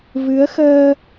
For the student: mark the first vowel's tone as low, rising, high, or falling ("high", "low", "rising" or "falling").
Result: rising